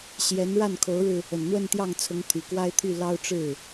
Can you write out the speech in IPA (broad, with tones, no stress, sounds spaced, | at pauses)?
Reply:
ɕ j ɛ˧˥ n ɻ a˥˩ n kʰ o˧˥ ʊ̯ ɻ ɻ̩˧ | ə˨˩ n n̪ w ə˥˧ n t̪ j ɑ˥˩ ŋ t͡sʰ ʊ˧˥ ŋ t̪ʰ y˨˩ k w a˥ ɪ̯ t̪ʰ y˥˩ l ɑ˥ ʊ̯ ʈ͡ʂ ɻ̩˥˩